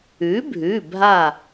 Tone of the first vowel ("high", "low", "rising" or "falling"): rising